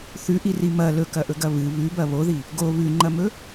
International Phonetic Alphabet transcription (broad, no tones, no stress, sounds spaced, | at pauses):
θ ʉ ʔ i r i m ɐ l ɵ k ɐ ʔ ɵ ɡ ɐ β ɨ β ʉ b ɐ β o ð i | ɡ o β ʉ ŋ͡ǃ ɐ m ɵ